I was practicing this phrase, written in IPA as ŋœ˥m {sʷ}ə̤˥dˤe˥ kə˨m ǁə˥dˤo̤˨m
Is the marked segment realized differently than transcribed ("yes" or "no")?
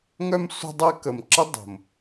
no